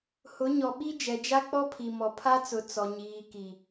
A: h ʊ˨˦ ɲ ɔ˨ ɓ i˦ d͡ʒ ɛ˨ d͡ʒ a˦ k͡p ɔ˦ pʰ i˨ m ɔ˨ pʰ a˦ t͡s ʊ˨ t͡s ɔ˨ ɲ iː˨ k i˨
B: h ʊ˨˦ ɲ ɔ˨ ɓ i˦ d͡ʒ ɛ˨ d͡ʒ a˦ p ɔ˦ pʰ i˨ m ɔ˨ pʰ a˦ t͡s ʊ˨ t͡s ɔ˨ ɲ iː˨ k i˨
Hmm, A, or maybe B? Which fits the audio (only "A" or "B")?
A